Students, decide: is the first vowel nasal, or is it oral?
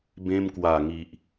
nasal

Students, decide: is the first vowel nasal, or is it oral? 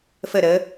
oral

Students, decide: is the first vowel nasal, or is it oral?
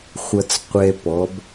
oral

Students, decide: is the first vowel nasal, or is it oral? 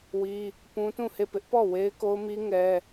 oral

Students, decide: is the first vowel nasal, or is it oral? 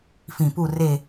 nasal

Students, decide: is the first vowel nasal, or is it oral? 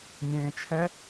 nasal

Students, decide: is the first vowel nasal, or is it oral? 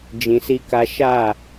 nasal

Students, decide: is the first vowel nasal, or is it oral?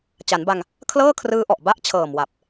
oral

